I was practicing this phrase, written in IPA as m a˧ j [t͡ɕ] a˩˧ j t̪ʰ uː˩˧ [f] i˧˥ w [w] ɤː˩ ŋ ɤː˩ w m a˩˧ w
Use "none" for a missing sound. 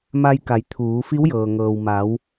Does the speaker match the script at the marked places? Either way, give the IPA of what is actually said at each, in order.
k, f, j

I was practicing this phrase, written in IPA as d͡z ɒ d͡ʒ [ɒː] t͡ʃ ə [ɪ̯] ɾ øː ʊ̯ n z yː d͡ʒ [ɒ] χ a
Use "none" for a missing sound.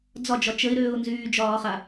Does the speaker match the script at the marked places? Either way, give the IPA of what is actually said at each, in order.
ɒ, ɪ̯, ɒː

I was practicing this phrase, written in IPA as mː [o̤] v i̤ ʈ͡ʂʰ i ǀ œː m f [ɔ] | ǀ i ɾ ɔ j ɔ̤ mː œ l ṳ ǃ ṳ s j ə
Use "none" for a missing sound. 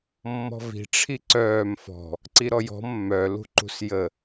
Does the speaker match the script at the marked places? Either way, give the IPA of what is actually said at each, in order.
ɔ̤, ɔ̤

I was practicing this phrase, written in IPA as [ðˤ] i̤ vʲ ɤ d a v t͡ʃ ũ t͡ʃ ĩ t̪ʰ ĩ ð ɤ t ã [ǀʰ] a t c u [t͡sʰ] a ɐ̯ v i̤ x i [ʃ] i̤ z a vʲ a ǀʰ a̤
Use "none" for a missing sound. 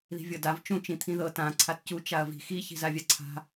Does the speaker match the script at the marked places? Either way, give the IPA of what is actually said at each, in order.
ð, ǀʰ, t͡ʃ, ç

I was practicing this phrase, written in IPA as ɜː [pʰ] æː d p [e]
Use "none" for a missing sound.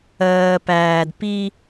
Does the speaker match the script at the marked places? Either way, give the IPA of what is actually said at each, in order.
p, i

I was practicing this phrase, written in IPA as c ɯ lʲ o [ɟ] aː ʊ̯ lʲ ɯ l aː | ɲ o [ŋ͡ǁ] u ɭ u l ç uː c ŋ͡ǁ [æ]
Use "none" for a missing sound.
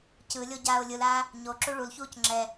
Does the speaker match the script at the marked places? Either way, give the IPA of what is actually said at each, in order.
ɟ, ǁ, ɛ

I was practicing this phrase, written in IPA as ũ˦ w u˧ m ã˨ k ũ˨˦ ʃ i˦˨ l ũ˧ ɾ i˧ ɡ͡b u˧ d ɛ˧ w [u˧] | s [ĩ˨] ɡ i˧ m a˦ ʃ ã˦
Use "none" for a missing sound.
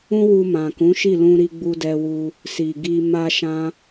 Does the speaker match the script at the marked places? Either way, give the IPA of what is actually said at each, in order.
u˧, i˨

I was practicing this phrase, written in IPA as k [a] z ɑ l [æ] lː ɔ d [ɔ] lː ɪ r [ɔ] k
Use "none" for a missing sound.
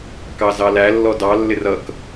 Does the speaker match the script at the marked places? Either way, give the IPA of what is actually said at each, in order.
ɑ, æ, ɑ, ʌ

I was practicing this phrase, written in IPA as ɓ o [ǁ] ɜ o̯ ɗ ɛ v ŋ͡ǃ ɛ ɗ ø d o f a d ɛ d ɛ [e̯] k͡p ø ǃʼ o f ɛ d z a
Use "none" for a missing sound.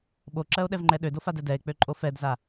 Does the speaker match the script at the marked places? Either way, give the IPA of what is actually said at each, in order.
ǁ, e̯

